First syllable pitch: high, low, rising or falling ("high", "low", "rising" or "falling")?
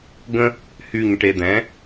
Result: high